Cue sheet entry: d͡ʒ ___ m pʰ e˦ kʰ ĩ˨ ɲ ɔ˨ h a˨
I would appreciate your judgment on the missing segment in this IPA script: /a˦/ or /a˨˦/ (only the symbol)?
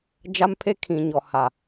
a˦